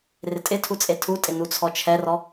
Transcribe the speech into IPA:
r ɪ tʼ ɪ tʰ u t͡sʼ e tʰ u tʼ ɪ n u t͡sʰ ɔ t͡ʃʰ ɛ r ɔ

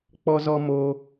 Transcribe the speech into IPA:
k͡p ɔ˧ z ɔ˧ m oː˧

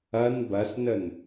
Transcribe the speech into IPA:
ɐ n b ɐ s n ə n

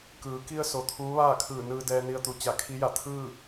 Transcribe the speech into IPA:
k ɯː˩˧ k i˧ ə̯ s o˩ t̪ʰ uː˧˥ ʋ aː˥˨ kʰ ɯː˧˩ n ɯː˧ d ɛː˧ n i˧ ə̯ t̪ u˩˧ t͡ɕ a˧˩ kʰ i˧˥ j a˧˩ t̪ʰ ɯː˥˨

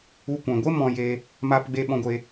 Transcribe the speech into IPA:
u˦ kʷ ɛ̃˧ ɡʷ e˦ m ɔ̃˧ j e˧ | m aː˧ p ɡ͡b e˧ ɓ ɔ̃˧ ɡʷ e˧

